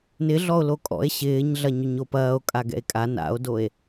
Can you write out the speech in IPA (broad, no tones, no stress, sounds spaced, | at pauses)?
n ɪ ɮ ɔ o̯ l o kʼ ɔ̰ e̯ ɕ ɪː ɲ ɮ ɐ ɲ ʏ ɲ o p ɐː o̯ kʼ a ɡ ɛ̰ e̯ kʼ a n a̰ o̯ d o e̯